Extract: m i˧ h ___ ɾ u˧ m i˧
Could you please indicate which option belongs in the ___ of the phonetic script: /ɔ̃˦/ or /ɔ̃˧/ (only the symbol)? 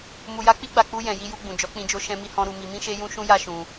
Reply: ɔ̃˧